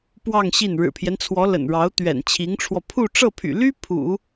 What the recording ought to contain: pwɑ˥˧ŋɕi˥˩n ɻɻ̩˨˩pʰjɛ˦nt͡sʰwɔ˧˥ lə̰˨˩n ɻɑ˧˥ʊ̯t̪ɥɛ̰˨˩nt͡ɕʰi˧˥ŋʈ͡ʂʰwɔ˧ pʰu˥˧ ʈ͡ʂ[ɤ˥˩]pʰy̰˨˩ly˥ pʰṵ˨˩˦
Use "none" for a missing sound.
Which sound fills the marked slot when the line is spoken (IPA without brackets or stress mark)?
ɤ˥˩